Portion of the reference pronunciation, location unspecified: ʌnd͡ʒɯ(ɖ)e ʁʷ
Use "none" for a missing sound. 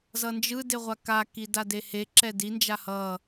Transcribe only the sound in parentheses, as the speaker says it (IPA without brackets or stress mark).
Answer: d